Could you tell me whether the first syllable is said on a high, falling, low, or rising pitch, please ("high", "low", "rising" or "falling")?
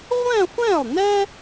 falling